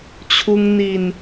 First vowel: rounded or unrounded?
rounded